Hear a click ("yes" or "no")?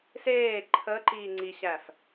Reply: yes